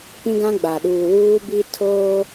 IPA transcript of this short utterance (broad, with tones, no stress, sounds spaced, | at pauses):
p ĩ˦ ɡ ã˦ ɡ͡b a˨ ɗ uː˨ w uː˦ b i˦ tʰ oː˦